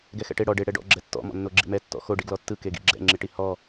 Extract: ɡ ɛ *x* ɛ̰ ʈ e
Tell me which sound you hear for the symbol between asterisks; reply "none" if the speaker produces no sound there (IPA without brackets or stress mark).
x